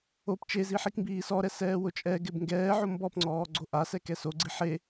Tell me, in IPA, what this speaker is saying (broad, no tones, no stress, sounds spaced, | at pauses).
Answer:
o p t͡ʃ e z i ħ i k m b iː s ɔ ɾ ɛ s ɛː w ʊ t͡ʃʼ ɛ ɡ ɪ b ŋ ɡ ɛː ʕ o m b ɔ p ŋ͡ǀ ɔː ɡ͡ǀ o ʔ a s ɛ k ɛ s o ɡ͡ǀ i ħ e